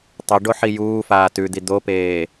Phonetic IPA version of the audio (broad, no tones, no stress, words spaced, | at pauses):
tˤɵɖo ħijuːfaː tʉd̪i d̪opeː